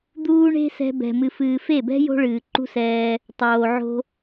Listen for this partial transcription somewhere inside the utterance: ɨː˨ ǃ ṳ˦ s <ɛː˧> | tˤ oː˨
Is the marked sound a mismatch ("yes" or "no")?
no